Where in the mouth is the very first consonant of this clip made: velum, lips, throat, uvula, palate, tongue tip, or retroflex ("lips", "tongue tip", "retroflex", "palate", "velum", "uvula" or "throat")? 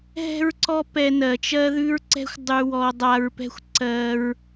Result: throat